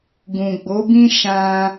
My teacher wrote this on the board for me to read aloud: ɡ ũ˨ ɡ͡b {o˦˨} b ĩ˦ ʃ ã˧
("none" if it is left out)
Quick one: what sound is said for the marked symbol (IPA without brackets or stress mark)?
o˨˦